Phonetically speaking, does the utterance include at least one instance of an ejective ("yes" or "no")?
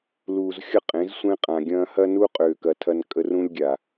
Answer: yes